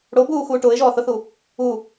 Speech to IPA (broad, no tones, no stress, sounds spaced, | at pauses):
ɽ o b uː x uː ʈ ʊː ɪ̯ ʒ ɔː θ ʊ θ u | u